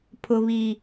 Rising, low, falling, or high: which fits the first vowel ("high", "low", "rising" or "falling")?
low